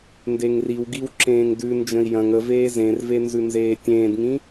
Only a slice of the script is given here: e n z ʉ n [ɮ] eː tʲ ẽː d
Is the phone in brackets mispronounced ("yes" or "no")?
yes